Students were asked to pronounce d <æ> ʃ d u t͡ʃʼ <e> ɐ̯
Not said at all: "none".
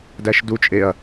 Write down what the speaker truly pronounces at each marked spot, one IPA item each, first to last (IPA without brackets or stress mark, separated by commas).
æ, e